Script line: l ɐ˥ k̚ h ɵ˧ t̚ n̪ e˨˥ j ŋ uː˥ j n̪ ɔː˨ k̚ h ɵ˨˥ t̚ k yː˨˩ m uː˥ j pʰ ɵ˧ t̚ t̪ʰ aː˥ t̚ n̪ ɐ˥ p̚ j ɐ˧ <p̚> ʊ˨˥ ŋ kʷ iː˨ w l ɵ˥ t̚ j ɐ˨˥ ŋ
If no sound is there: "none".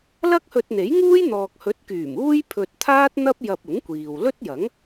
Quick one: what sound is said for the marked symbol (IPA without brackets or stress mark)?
p̚